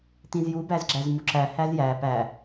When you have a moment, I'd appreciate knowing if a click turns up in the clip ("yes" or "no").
yes